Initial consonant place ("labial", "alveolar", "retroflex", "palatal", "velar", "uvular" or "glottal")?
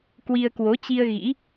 velar